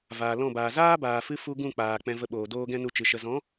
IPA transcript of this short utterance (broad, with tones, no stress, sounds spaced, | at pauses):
v aː˨ l ɔ̃˦˨ b aː˨ z aː˦ b aː˨ f ɨ˧ f u˧ ɡ ũ˦˨ k͡p aː˨ k͡p ɛ̃˧ v ə˧ ɓ oː˨ d oː˦ ɡ ɛ̃˦ n u˧ t͡ʃ ɨ˨ ʃ ə˨ z ɔ̃˨˦